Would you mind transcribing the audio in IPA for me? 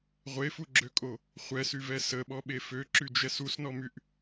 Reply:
ʁʷefuɡ͡ǁøkʼo | χʷɛsyvɛ səɓɔɓe føǁyd͡ʒɛs usnɔmyʔ

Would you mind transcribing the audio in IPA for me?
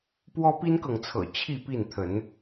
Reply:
pwɔ˦pi˦nkɤ˨ŋt͡sʰɤ̰˨˩ t͡ɕʰi˥˨pi˥˨nt̪ʰə˨˦n

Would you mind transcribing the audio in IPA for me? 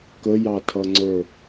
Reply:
kəjɑtʰʌŋ͡ǀə˞

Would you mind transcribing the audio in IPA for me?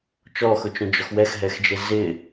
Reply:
t͡ʃɔxʊt͡ʃõ d͡ʒɔxwɛxɦɛxd͡ʒe zɪ

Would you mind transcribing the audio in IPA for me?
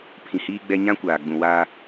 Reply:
pʰĩ˨hiː˦ɡ͡bɛ˦ ɲã˦kʷaː˨ɡ͡bũ˨ waː˦

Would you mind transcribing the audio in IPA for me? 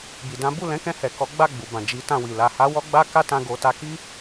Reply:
bi˨dã˨˦ bu˦˨lɛ̃˨˦kɛ̃˧hɛ˨ kɔ˨˦ɡ͡ba˦˨ɡ͡bu˨bã˨ d͡ʒi˨˦tã˦˨wi˨ la˨ha˨˦wɔ˧ ɡ͡ba˦ka˦tã˧ ɡo˨ ta˧ki˦

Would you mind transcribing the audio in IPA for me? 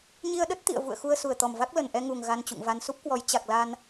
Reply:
ɲi˧ə̯ɗə˦˥t̚ t̪ḭ˧˨ə̯ vṵ˧˨ə̯xu˧ə̯ su˨˩ə̯t̪ɔ˨˩mva˦˥k̚ lə˨˩nʔɛ˧ŋu˨˩ŋ ɣa˧nt͡ɕṵ˧˨ŋva˧n su˦˥p̚kwɔ˨˦j t͡ɕa˨˩k̚la˧n

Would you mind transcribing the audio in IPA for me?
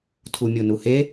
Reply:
tʰumʲonuhe

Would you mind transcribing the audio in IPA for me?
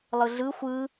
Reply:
lˠɯɮɯ xʷɯ

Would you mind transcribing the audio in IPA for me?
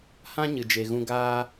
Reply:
hã˦ ɲɨ˨d͡ʒe˨ɣũ˧ ɡaː˦

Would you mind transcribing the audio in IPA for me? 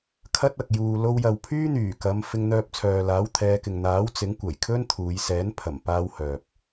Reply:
kʰɐ˥t̚ɐ˨k̚ juː˨ lo˧wjɐ˨wpʰyː˥n̪yː˨˩ kɐ˨˧m fɪ˧ŋn̪œː˧p̚t͡sʰœː˨laː˨˥w t̪ʰɛː˨˧kɪ˨ŋn̪aː˨˥w t͡sɪ˨˥ŋ kʷɐ˨˩jkʰɵ˥nt̪ʰuː˨˧j sɛː˨˥npʰɐ˨˩mpaː˧w hœː˨p̚

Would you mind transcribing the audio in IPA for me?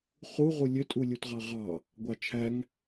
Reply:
χu ʁulʲø tʼulʲutʁɑʁɑ | ɡʷɑt͡ʃʰæŋ

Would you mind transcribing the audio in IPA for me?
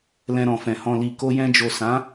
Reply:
lɛ̃˧ɾɔ̃˨fɛ̃˨ hɔ̃˨li˨ ko˧jɛ̃˧d͡ʒo˨ sã˨˦

